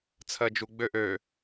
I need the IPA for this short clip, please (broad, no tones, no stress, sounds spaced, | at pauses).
t͡sʰ ɜ d͡ʒ u ɡ͡b ø ʔ ø